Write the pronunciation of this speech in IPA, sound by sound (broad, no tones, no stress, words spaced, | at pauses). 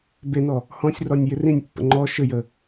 benɔ | hɔ̃sʲrɔnʲ jɪrĩnʲpːə̰ ŋ͡ǃɔ ʃɘjə